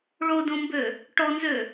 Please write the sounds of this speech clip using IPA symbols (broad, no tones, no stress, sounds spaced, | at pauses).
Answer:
ɭ o d õ m b ø | ʈ ɔ n z ø